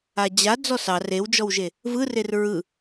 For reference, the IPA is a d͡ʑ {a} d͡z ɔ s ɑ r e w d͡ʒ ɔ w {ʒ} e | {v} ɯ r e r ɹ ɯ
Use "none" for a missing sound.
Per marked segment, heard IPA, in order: a, ʒ, v

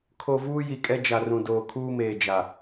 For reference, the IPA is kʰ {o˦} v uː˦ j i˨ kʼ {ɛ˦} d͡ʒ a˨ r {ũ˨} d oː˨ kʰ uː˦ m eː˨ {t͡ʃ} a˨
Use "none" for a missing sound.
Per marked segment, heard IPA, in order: o˨, ɛ˦, ũ˨, d͡ʒ

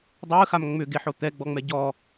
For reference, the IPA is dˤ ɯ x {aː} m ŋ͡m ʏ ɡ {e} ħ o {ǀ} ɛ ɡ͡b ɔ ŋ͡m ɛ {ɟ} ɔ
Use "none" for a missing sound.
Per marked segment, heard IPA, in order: a, e, t̪, ɟ

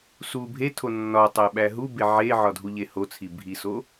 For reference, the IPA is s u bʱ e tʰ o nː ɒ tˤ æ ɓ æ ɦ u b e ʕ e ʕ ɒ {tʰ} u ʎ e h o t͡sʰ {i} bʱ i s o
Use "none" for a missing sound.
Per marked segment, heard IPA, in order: dʱ, i

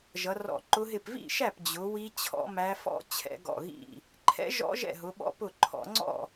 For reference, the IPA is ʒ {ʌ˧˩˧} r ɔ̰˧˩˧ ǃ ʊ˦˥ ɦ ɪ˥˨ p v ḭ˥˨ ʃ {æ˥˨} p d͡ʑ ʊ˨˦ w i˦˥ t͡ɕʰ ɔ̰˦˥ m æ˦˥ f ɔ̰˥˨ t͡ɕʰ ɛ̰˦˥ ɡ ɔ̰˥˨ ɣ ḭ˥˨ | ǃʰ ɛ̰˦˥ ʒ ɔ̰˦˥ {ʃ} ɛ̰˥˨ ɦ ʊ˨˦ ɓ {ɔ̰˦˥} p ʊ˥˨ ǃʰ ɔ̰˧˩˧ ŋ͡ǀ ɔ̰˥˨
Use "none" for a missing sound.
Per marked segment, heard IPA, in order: ʌ˨˦, æ˥˨, ʒ, ɔ̰˦˥

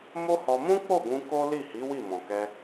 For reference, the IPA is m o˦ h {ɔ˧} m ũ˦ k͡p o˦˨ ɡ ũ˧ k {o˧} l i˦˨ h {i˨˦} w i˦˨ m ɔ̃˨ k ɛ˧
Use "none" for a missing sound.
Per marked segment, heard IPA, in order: ɔ˧, o˦, i˨˦

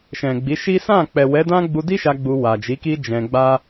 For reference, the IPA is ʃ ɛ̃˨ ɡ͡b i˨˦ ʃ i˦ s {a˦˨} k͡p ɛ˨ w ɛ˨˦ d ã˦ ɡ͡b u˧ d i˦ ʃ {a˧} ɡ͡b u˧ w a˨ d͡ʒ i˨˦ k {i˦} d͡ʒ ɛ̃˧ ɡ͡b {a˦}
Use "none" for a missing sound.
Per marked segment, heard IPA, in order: ã˦˨, a˧, i˦, a˦

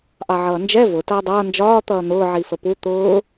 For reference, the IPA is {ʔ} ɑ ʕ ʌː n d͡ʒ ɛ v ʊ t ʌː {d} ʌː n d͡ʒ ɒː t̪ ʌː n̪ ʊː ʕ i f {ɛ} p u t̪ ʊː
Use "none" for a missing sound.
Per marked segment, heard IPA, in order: ʔ, dˤ, ə

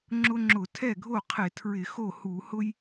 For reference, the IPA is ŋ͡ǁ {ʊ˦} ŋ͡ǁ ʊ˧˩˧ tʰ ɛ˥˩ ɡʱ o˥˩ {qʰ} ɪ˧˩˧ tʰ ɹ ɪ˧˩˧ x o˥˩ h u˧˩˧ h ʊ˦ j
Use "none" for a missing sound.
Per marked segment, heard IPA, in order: ʊ˦, qʰ

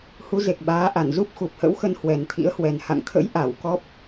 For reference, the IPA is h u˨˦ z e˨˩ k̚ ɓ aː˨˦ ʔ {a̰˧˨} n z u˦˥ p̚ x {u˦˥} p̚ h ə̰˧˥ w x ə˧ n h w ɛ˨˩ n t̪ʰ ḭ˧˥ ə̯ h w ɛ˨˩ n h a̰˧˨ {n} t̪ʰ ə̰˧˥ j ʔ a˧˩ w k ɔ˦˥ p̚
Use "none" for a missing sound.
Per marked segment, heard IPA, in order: a˧˩, u˨˩, ŋ

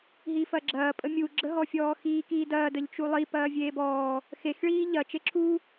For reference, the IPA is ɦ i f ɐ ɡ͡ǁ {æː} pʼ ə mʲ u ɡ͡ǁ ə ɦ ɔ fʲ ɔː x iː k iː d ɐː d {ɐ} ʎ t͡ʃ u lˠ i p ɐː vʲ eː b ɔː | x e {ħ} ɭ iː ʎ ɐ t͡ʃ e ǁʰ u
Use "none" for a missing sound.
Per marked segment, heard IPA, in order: ɐː, ə, x

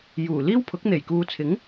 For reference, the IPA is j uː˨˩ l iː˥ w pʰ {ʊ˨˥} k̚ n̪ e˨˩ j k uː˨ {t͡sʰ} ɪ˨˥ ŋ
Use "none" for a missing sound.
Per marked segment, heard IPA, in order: ʊ˨˥, t͡sʰ

